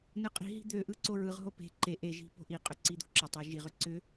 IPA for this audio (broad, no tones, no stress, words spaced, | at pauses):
nɯqʼi̤ɦi̤ d̪øʔɯ ǀoɹɯʁɦo pe̤ ǃe ʔeʒi̤ po̤ʔiqʼʏ ǀid̪o̤ǁətˤe ʒiʁʏ ǀʏ